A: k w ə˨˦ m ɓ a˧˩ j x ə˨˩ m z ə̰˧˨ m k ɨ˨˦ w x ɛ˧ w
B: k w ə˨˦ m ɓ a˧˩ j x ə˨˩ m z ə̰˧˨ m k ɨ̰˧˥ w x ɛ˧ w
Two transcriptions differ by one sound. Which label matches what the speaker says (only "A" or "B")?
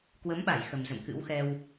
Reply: B